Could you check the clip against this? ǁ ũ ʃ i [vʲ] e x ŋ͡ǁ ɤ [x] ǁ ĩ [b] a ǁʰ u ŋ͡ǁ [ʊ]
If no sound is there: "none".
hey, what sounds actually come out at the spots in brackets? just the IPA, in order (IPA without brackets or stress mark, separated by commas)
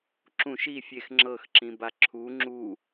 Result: fʲ, x, b, u